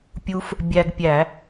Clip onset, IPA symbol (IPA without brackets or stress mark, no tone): pʲ